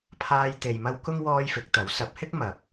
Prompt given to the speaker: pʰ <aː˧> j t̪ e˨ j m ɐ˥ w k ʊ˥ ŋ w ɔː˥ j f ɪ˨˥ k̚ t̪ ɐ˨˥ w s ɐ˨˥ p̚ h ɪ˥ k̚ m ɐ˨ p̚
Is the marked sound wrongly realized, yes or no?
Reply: no